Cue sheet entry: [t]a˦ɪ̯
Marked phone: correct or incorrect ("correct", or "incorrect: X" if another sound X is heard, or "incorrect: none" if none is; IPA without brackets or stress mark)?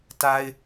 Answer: correct